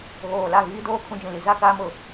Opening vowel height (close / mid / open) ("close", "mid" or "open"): mid